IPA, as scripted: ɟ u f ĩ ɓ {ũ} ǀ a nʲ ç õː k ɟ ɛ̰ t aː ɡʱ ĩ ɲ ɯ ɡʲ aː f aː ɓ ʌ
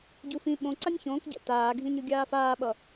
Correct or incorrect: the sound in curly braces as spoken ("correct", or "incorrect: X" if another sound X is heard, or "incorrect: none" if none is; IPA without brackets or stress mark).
incorrect: õ